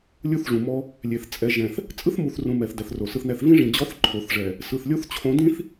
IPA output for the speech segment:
lʲu˦θʐũ˨mɔ˦ | lʲe˨θ t͡sʼɛ˨ʒɛ̃˨θ | t͡sʼɯ˦θmu˨θrũ˨ mɛ˨θ dɛ˨θro˨sɯ˦θnɛ˦θ vĩ˦ʐĩ˨d͡ʑɔ˦θ ǃʰo˨θʐɛ˨ | sɯ˨θlʲo˦θt͡ɕʰõ˨˦dĩ˦θ

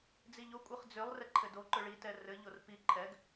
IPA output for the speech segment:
d͡ziʎo kʷʼɘχd͡zʏlˠ rɛǃʰɘdo ǃʏɭi tɛrɘ ʎorpi ǃʰɛɡ

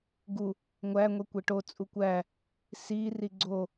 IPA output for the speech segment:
ɡu | ŋʷæ ŋʷekʷeʈo t͡sʼukʷæ | si riɡ͡ǀo

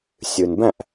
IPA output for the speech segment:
sʲɨ˨nbæ̃˦˨ʔ

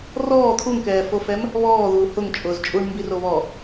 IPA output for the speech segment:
rɔː t̪ʰuŋkɛːfofɛm | βɔːðuː hʊŋ t͡ʃʼʊːzt͡ʃʼuɳ mbiroβɔ

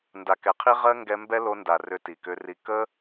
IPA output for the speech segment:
nda˨kɛ˨qʰi˦ ʁɜ˦ ŋɡɛ˧mbɛ˦lo˧nda˨ rʏ˧ti˨kʏ˧ri˧ kə˦

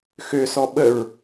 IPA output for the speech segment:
xøsɔ ɓəɹ

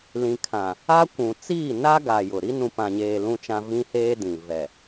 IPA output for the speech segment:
lĩ˨kʰã˨ | a˦kʷũ˨ t͡siː˦˨na˦ ɡa˨ jʊ˨ ɾi˦ nũ˨pã˨ɲeː˨ lũ˦t͡ʃã˦ vĩ˦heː˦dĩ˨ vɛ˨

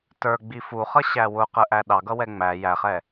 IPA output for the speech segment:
tə˞ɡ͡bi fuχʌɕæ wʊqəʔæ ɗɑɡʌwɛ ŋ͡mæ jæχɛ

